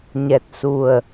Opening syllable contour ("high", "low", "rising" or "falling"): low